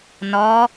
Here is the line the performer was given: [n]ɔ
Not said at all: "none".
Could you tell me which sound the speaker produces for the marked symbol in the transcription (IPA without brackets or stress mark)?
n